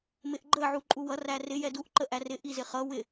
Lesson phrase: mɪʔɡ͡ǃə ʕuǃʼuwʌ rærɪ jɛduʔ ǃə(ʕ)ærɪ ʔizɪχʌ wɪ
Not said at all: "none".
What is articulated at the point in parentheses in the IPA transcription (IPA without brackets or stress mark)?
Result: ʔ